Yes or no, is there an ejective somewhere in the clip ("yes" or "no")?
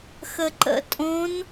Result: yes